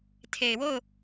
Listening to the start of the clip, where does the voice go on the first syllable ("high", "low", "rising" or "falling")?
low